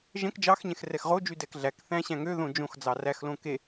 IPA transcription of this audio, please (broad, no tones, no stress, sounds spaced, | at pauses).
ʒ ɛ̃ k d͡ʒ ɑ x ɲ ɛ̃ x r ɛ x ʁ o d͡ʒ y d ɛ k ɮ æ k θ æ̃ ɕ æ̃ ŋ ø ð õ d͡ʒ õ x d͡z ɑ r æ x l õ k e